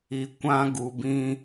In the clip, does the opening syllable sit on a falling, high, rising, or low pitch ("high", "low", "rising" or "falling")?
low